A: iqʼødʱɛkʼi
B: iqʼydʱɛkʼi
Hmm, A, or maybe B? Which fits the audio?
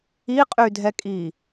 B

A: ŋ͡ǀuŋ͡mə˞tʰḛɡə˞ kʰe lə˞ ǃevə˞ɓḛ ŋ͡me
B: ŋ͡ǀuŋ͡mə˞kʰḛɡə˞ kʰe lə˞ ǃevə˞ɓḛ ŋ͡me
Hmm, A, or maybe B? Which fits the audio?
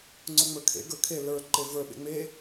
B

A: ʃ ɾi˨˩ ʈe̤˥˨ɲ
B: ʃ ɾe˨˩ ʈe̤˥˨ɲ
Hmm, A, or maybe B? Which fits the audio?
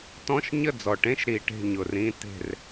A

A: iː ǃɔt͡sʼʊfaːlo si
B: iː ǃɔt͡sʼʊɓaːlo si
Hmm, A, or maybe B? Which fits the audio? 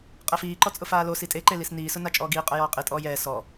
A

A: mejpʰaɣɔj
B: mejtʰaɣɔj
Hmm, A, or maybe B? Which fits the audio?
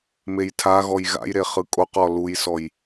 B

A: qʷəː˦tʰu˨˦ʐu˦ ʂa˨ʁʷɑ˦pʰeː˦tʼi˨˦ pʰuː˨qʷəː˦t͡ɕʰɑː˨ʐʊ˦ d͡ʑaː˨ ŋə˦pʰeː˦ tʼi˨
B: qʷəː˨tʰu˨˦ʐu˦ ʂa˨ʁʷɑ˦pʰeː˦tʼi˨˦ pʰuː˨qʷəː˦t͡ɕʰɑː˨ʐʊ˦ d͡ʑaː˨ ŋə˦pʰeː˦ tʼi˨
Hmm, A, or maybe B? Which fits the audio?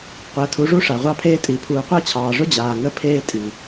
B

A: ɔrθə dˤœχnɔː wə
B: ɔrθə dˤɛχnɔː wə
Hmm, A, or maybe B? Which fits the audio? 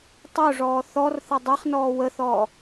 B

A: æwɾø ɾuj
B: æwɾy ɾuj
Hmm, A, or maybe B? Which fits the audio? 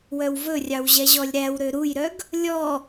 A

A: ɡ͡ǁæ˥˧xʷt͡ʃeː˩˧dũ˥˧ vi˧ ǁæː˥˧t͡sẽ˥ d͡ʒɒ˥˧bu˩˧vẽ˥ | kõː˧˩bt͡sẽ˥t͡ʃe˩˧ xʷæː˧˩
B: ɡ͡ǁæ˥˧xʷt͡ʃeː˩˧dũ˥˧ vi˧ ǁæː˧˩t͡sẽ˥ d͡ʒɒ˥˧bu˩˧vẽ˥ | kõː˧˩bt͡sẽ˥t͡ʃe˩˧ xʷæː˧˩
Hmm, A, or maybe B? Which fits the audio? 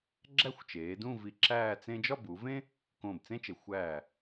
A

